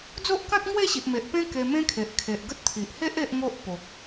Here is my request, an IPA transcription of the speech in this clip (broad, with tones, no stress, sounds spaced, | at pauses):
d͡z o˦ ʔ k ã˦ t̚ ŋ w e˥˧ ɕ i˨ ʔ m e˨ ʔ p ẽ˦ k e˧ m ẽ˦ kʰ e˨ ʔ kʰ e˨ ʔ ɡ ə˦ t̚ t̪ʰ i˨ ʔ h e˦ ʔ e˦ ʔ ŋ o˦ ʔ p o˨ k̚